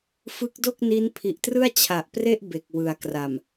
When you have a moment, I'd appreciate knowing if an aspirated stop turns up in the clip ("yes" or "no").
yes